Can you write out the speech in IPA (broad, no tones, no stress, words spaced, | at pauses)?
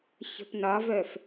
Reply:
çə̤pnɒvœf